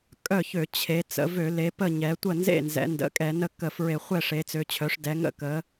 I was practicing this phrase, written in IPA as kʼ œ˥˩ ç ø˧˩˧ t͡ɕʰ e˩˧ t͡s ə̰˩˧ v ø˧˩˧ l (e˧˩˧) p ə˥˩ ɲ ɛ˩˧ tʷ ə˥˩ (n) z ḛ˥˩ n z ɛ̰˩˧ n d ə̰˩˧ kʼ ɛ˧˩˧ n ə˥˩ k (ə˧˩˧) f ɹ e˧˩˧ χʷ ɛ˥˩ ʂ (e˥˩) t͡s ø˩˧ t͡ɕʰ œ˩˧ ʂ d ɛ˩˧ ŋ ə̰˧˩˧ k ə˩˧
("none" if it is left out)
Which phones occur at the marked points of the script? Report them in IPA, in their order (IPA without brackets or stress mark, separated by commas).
e˩˧, n, ə˧˩˧, e˩˧